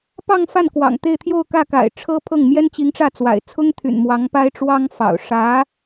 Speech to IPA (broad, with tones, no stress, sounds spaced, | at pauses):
p ɑ˥˧ ŋ f a˥˩ n k w ɑ̰˨˩ ŋ t̪ e˥˧ ɪ̯ t̪ʰ j o˥˧ ʊ̯ k ä˥˩ k a̰˨˩ ɪ̯ ʈ͡ʂʰ ɤ˥ pʰ ɤ˥˩ ŋ m j ɛ˥ n t͡ɕ i˧˥ ŋ ʈ͡ʂ ä˥˩ t͡s w a̰˨˩ ɪ̯ t͡sʰ ʊ˥ ŋ t̪ʰ y̰˨˩ n m w ɑ˧˥ ŋ p a˥ ɪ̯ ʈ͡ʂ w ɑ˥ ŋ f ɑ̰˨˩ ʊ̯ ʂ ä˧˥